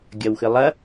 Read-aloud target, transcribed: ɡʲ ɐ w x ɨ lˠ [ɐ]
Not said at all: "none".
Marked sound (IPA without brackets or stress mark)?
ɐ